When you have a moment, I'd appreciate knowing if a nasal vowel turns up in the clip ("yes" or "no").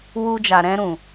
yes